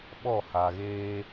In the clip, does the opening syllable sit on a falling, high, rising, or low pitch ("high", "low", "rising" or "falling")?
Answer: falling